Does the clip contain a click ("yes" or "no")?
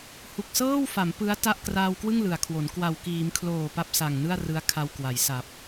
no